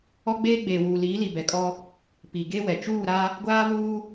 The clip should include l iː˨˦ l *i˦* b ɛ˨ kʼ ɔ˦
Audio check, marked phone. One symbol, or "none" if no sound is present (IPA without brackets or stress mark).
i˨